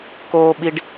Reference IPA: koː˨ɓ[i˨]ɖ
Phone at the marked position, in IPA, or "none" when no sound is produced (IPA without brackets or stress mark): i˨